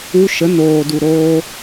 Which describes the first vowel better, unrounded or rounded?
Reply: rounded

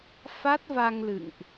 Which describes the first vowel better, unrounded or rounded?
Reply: unrounded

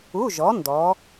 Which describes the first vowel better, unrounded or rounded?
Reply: rounded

